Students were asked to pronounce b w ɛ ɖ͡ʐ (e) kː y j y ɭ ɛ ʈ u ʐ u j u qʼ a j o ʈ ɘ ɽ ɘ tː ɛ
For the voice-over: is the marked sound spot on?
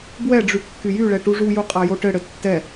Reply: no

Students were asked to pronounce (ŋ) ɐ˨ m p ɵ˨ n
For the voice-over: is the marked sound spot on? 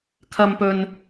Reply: no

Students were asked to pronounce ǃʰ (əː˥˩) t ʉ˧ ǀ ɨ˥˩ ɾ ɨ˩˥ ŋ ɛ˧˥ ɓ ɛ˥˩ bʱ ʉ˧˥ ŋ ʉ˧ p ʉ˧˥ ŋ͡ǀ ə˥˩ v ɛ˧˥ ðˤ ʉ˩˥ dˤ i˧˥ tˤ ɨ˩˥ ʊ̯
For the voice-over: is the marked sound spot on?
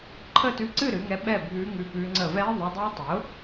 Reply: no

